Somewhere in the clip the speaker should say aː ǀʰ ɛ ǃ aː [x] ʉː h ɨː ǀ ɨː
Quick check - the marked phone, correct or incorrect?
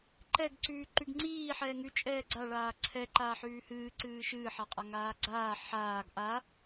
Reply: incorrect